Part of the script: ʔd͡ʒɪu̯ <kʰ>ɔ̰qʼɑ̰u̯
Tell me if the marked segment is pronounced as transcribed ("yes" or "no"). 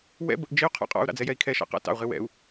no